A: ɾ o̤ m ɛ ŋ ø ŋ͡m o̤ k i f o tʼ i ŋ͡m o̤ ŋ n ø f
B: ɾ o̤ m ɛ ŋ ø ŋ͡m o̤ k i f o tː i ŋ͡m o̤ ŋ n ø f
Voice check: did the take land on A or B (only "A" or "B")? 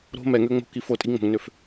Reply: A